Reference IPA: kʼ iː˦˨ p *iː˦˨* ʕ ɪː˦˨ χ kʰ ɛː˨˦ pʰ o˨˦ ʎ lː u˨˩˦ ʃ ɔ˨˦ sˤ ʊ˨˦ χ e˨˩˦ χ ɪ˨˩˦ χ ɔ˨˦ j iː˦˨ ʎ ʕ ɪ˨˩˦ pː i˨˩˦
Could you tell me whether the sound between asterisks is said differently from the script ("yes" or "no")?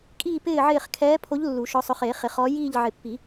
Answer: yes